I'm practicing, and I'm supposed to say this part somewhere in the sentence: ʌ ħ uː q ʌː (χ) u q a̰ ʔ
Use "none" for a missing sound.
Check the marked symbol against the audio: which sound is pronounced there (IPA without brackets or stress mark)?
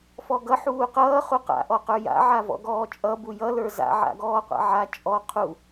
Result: χ